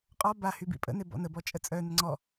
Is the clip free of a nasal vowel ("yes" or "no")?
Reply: yes